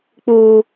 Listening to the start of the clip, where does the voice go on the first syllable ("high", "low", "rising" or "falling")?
high